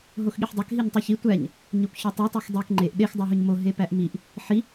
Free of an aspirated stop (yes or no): yes